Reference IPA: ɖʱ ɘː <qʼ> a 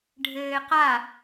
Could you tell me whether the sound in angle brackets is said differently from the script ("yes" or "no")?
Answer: yes